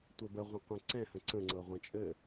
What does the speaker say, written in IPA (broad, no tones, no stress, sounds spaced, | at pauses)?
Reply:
tʷ ɘ b ə ʁʷ ə̃ qʷ ɛ̃ ǀ ɛ̃ h ə̃ ǀ ə̃ ŋ͡ǀ ɤ ʁʷ ə̃ t͡ʃʼ ɘ